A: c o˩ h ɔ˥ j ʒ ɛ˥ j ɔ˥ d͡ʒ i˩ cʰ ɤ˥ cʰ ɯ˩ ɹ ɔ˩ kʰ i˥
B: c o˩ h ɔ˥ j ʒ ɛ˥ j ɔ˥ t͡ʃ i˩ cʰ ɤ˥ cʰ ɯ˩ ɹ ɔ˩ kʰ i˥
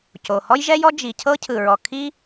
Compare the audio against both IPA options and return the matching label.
A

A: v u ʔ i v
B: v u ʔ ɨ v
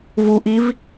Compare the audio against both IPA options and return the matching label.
A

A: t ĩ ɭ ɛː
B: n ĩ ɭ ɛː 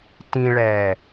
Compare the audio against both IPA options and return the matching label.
A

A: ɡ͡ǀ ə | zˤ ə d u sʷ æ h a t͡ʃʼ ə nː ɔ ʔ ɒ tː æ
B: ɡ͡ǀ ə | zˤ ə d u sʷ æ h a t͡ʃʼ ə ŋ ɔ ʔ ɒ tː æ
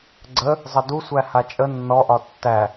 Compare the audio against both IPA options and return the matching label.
A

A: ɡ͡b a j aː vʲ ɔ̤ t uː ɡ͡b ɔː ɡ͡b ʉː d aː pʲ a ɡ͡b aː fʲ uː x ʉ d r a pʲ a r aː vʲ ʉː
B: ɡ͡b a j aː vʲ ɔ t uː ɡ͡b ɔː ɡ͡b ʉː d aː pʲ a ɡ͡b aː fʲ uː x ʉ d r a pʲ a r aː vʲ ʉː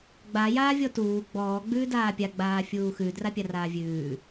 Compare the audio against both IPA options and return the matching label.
B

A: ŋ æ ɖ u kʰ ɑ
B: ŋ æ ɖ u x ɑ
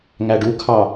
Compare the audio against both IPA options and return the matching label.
A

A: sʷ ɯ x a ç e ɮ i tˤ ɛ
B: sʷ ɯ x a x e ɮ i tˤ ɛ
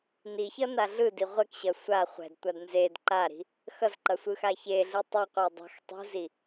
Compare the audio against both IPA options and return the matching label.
A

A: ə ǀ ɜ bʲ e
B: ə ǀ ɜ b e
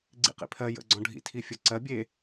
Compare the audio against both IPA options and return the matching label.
A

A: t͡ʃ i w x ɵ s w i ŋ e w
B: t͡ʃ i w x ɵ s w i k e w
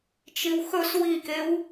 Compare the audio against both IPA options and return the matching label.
B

